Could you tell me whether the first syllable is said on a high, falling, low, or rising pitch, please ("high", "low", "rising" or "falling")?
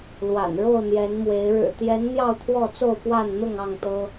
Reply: low